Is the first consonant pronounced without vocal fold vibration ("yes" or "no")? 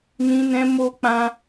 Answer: no